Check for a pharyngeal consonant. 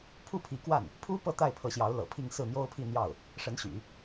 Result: absent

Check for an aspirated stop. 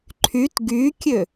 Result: present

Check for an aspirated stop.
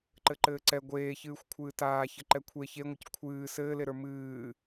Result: present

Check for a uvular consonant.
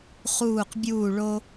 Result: present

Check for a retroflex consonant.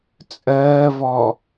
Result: absent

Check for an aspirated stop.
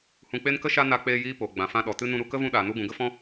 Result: absent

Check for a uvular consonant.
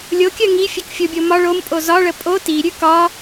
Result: absent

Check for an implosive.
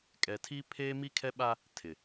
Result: present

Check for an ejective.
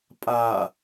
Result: present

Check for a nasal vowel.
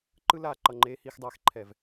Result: absent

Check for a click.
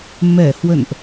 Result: absent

